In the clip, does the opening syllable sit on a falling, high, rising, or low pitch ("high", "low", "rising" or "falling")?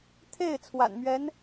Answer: falling